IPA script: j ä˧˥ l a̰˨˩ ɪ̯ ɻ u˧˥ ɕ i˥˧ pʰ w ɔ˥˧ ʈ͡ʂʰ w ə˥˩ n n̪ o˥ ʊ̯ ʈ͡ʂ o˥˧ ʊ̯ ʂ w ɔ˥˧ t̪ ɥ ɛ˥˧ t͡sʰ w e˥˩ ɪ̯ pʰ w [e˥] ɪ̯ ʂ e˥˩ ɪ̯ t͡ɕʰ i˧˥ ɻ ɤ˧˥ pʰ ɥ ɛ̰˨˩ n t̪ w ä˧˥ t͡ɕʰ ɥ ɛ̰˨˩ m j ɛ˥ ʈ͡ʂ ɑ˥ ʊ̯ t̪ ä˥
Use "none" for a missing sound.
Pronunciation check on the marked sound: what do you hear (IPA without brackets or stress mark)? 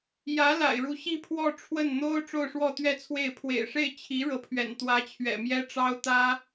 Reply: ḛ˨˩